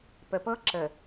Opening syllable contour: low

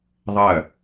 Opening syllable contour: falling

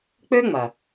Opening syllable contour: high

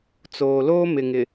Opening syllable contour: low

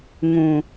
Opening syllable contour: low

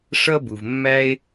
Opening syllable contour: high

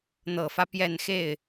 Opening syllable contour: low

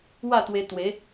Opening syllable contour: falling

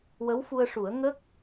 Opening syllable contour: rising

